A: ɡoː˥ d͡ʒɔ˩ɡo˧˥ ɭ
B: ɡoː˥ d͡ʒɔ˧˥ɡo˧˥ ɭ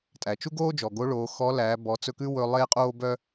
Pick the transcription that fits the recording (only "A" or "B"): A